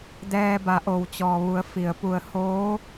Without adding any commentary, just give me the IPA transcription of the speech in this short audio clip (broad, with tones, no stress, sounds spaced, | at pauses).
d ɛː˧ b a˩˧ ʔ o˩ w t͡ɕ ɔː˩ ʋ u˩˧ ə̯ f i˩ ə̯ p u˧˩ ə̯ h oː˧˥